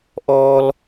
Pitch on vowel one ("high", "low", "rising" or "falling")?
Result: high